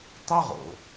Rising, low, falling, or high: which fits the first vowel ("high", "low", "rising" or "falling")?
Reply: high